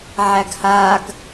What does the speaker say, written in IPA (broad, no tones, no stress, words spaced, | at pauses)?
ʕæɡhaɡ